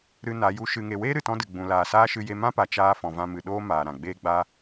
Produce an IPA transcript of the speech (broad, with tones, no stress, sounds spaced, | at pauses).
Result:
ɾ ɨ˧ n a˨˦ j u˧ ʃ ɨ˨ ŋ e˨ w eː˦ ɾ ɨ˨ t ɔ̃˦ d ɨ˨ ɡ͡b ũ˨ l aː˨ s aː˦ ʃ ɨ˧ j e˧ m ã˦ p a˨ t͡ʃ aː˦ f ɔ̃˨ v ã˧ m ɨ˨ ɗ oː˦ m aː˨ ɾ ã˨ ɡ͡b eː˦ ɡ͡b a˦